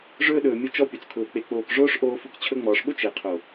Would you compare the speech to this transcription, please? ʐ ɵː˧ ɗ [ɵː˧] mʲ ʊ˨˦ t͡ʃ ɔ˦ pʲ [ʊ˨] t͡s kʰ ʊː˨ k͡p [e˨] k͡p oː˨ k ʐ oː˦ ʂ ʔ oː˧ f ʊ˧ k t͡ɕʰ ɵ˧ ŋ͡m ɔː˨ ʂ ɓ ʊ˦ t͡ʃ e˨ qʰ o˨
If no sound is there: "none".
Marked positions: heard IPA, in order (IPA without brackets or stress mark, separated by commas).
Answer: ɵː˨, ʊ˨, e˨